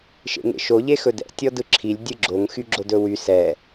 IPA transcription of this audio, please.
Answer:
ʃ ḛ ŋ ḛ ʃ o ʎ e x ɵ d ɛ̰ tʲ ɔ d ɯ ǁʰ i lʲ dʲ ɯ ɡ͡ǁ o ŋ x y ɡ͡ǁ o d ɵ w y s ɛ

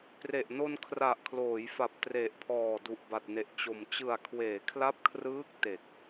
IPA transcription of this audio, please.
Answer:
p r e˨˩ ʔ n o˧ n kʰ r a˨˩ ʔ kʰ l oː˩˦ j f a˨˩ p̚ t r e˨˩ ʔ pʰ ɔː˨˩ d u˨˩ ʔ b a˨˩ t̚ n e˨˩ ʔ t͡ɕ o˨˩ m t͡ɕ ɯ˨˩ a̯ kʰ w eː˩˦ kʰ l a˦˥ p̚ kʰ r ɯː˦˥ k̚ t e˨˩ k̚

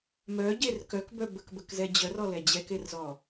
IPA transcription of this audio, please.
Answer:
m œ ɟ e r k œ k b œ b ə k b ə k z ɛ d͡ʑ œ r ɔ l ɛ d͡ʑ ɛ k e r z ɔ

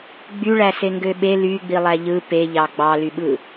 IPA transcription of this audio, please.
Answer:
ɡ͡b y ɭ æ s e ŋ ɡ ø ɓ e l y ɡ͡b i lˠ æ ʎ ɯ p e ʎ ɑ ɡ͡b ɑ l y ɓ ɯ

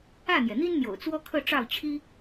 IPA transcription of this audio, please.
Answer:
ä˥˩ n̪ j ɛ˩ n̪ i˥ n n̪ j o̰˨˩ ʊ̯ t͡s w ɔ˥ kʰ ɤ˥˧ ʈ͡ʂ ɑ˥˩ ʊ̯ t͡ɕʰ i˥

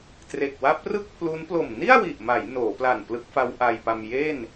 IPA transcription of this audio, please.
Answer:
t r e˨˩ k̚ w a˦˥ p̚ r ɯ˥˩ k̚ pʰ l u˦˥ n p l o˨˩ m n i˥˩ a̯ w i˨˩ ʔ m a˩˦ j n oː˩˦ p l a˨˩ n p l ɯ˦˥ k̚ f a˦˥ w ʔ a˧ j p a˧ m j e˥˩ n

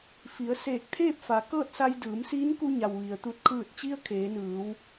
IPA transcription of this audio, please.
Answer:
f i˩˧ ə̯ s eː˧˩ k̚ t̪ʰ eː˥˨ p̚ f a˩˧ k ɤː˥˨ t̚ s a˧ j d ɯː˩˧ m s iː˧˥ n k u˧ ɲ a˩ w ʋ i˩ ə̯ t̪ u˧˩ t̚ kʰ ɯː˧˩ t̚ t͡ɕ i˧ ə̯ kʰ eː˩˧ n ɯː˩˧ w

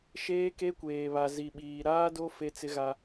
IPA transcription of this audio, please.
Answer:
ʃ eː˦ k e˦ kʷ eː˨ β a˨ z i˨ ɓ iː˨ ɾ aː˦ d o˦ f e˦ t͡s ɪ˦ ɣ a˦

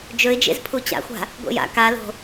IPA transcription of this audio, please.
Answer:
d͡ʒ ɵ ɪ̯ d͡ʒ ḛ z pʰ u t͡ɕ a̰ xʷ a̤ | ɡʷ ḛ j a̰ k a l o̤

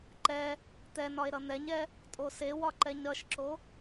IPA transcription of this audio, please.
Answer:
ǃ ɛ | t̪ ɛ n ɒ e̯ ɾ ʌ n̪ ɛ ɲ ɛ | tʼ o s e w ɒ ǃ ɛ ɲ ɾ ʌ ʃ ǁ o

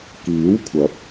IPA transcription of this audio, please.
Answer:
k iː˨˥ w kʷʰ ɐ˨˥ p̚

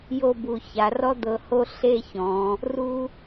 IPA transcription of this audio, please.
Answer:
j o˥˧ b u˧˩ ç a˩˧ r ɔ˥ d̪ ɤ˧ h o˥˧ ɬ e˥˧ ç ɔ̃˩˧ | r u˥

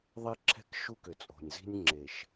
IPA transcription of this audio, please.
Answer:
ðˤ e˦ ǁʰ ɛ̤˦ k ʃ u˦ k ʏ˨ t͡sʼ o̤˨ nʲ z i̤˦ nʲ ŋ͡ǁ e˨ ʃ

